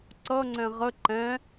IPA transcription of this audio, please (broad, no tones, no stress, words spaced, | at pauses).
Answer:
ǀʌ ŋ͡ǀɛ̃ʁə ǃɛ̃